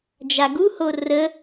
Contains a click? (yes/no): no